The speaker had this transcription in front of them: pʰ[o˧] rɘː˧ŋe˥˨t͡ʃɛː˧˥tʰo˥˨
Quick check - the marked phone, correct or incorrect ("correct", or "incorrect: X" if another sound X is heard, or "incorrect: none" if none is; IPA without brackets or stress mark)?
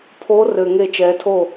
incorrect: o˧˥